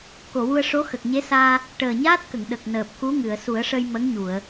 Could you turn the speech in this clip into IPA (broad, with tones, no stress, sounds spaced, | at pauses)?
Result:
k o˨˩˨ w u˧ ə̯ ʂ o˧˥ x ə˨˩ k̚ ɲ e˧˥ s aː˧ | ʈ əː˨˩ ɲ aː˦˥ t̚ k ə˨˩˨ ŋ ɗ ə˨˩ k̚ n əː˨˩ p̚ k u˧˥ ŋ ɨ˨˩˨ ə̯ s u˨˩˦ ə̯ ʂ ə˧ j m ə˧˥ ŋ ɲ u˨˩˨ ə̯